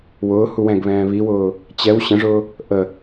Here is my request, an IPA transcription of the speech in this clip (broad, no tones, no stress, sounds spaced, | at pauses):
w ʊː h u w ɛ̃ ɡ β ɛ̃ː β i w ʊː | t͡ɕ ɛ w ɕ ə̃ ʐ ʊː | ʔ ə